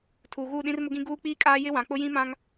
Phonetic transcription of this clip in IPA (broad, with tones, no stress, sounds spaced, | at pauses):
tʰ uː˨ ɣ uː˦˨ ɗ ĩ˦ r m ʊ˦ ɡ ĩ˦ ɡ uː˦ k͡p iː˦ kʼ aː˦ j ɪ˦ w ã˨ k͡p ʊ˦ j ĩ˦ m ã˦ ŋ